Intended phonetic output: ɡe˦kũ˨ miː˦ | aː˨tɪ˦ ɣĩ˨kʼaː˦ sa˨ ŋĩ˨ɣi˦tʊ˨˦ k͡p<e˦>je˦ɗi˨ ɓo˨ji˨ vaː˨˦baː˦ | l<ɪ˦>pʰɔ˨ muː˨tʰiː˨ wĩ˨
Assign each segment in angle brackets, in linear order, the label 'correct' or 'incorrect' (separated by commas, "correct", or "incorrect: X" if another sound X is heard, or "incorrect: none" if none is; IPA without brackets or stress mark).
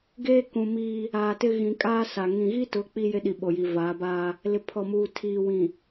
incorrect: i˦, incorrect: ɪ˨